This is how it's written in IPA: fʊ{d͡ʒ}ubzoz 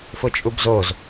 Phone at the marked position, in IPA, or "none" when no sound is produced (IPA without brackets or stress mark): t͡ʃʼ